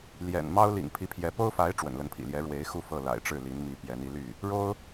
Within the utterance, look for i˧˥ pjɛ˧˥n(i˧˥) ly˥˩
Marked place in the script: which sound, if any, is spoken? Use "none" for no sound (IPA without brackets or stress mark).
i˧˥